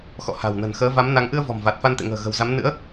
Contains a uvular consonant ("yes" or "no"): no